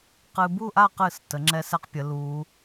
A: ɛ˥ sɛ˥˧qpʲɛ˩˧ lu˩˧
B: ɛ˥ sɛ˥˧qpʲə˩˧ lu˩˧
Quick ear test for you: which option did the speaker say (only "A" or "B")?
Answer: B